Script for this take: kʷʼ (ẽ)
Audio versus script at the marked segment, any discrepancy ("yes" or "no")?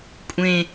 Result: no